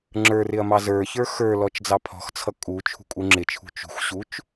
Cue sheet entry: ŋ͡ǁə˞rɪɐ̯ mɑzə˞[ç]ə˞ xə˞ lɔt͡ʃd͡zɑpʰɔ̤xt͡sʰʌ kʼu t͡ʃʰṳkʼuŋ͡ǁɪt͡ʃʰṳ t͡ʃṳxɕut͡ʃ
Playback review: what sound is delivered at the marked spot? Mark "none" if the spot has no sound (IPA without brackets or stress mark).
ç